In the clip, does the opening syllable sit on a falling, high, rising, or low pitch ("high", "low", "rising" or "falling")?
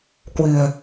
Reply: low